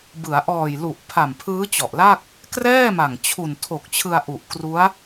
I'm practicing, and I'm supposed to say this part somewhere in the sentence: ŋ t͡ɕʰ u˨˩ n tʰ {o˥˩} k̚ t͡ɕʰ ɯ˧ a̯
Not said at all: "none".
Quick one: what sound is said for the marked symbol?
o˨˩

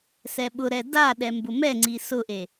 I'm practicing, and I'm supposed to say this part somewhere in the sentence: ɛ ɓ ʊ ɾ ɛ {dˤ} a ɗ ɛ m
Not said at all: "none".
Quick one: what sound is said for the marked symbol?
d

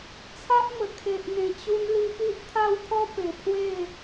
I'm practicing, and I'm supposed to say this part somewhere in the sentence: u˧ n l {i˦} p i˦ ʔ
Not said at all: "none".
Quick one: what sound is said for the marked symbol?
i˧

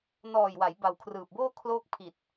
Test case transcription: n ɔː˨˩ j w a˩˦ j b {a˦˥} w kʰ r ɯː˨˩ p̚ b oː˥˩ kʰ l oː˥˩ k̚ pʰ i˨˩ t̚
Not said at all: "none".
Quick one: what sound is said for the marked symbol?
a˨˩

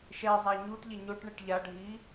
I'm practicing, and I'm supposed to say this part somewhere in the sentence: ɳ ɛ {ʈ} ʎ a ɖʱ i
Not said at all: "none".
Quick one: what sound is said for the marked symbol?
ʈ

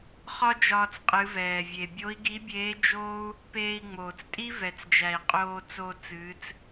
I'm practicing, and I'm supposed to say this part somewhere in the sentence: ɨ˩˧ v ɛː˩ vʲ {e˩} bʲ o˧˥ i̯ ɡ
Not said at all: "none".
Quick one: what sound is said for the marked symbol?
e˩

